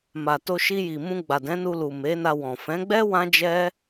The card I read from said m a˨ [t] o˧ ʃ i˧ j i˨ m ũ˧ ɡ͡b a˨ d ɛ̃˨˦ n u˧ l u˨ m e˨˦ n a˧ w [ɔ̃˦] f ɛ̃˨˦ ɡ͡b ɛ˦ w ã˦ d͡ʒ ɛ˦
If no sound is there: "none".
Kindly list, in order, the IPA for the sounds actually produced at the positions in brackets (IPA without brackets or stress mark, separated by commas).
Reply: t, ɔ̃˨